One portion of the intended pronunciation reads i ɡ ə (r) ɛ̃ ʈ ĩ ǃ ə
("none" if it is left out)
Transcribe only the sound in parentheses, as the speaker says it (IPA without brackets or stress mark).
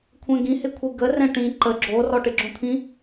r